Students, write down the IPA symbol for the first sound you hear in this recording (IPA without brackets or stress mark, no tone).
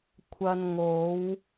kʷʰ